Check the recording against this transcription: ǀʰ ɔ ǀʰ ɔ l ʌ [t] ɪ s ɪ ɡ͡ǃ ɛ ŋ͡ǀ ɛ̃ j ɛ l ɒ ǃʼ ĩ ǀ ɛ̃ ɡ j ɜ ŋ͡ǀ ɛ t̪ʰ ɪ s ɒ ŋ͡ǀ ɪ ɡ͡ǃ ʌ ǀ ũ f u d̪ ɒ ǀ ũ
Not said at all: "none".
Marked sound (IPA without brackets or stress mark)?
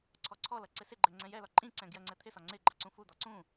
ǀ